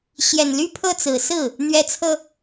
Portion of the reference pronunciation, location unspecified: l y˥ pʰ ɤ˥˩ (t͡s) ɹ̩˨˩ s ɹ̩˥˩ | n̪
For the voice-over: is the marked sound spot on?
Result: yes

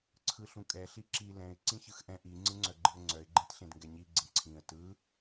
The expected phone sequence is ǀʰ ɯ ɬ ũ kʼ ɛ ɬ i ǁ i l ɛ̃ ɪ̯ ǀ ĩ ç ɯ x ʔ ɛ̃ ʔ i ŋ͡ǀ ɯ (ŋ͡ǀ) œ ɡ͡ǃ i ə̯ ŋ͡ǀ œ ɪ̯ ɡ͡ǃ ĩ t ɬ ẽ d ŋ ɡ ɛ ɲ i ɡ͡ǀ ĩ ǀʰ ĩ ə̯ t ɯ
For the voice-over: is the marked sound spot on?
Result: yes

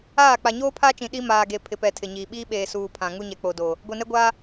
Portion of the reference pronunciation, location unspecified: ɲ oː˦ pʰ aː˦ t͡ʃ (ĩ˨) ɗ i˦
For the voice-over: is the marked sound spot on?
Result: yes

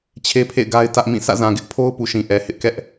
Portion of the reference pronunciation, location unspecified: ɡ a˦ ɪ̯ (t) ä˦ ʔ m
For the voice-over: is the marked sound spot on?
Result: yes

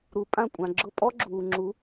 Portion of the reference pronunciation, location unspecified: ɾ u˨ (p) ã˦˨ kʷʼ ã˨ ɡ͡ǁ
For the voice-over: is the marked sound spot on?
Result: no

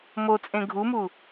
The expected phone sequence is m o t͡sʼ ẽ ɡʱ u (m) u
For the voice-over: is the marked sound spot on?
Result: yes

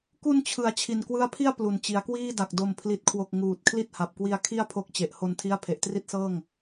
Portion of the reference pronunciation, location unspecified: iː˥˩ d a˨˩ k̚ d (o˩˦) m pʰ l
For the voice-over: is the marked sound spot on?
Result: no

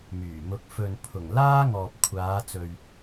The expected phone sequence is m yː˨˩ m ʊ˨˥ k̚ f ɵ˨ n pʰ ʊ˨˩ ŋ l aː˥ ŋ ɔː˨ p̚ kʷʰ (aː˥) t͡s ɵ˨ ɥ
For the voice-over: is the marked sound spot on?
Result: no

